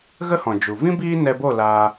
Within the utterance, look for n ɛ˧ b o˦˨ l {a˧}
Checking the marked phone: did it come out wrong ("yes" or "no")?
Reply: no